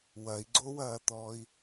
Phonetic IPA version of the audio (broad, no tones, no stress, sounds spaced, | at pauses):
w ɐ i̯ ɡ͡ǀ o w ɐː t̪ ɔː i̯